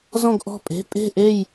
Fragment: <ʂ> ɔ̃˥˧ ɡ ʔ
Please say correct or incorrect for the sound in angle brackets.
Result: incorrect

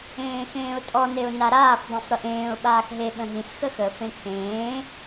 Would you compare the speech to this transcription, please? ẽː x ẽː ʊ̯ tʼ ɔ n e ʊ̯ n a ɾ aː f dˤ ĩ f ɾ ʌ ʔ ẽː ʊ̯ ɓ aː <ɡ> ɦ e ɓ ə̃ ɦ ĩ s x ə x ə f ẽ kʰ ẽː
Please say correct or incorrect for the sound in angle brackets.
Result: incorrect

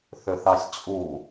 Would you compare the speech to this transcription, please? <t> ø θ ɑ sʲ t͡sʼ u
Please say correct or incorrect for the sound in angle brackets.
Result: incorrect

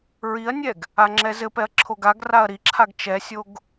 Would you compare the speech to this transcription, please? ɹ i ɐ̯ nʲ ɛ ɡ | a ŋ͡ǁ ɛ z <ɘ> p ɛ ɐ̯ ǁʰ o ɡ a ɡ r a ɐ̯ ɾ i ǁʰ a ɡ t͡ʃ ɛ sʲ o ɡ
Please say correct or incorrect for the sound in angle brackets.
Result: correct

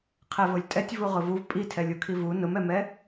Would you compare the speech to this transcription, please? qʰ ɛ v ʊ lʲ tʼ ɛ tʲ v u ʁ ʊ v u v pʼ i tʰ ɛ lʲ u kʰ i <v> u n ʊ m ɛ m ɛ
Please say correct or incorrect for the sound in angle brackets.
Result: correct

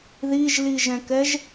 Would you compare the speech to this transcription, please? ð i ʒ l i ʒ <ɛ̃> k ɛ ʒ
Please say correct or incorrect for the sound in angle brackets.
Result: correct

